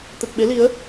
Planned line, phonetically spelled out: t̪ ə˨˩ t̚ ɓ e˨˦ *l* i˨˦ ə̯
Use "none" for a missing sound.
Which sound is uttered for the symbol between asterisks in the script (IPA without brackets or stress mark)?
l